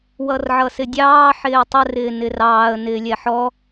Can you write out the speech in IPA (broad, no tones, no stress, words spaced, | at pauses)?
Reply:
wʌrʕʌsɪdʲɑː ħɪːtˤə rɪːnɪrɑːə̯ nɪːlʲɛħɔ